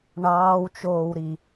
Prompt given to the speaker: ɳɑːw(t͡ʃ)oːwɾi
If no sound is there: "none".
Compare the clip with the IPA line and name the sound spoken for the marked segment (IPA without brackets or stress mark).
t͡ʃ